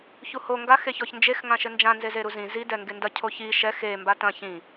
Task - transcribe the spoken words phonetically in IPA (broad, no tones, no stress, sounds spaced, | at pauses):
ç u h o ŋ ɡ a x e ç ɔ ç n d͡ʒ e x ŋ ã ʃ ɘ n d͡ʒ ã n z e z e ɾ u z ĩ z i d ɛ ŋ ɡ e n d ɐ cʰ o ç i ʃ ɛ x e m b a t ɐ̃ ç ĩ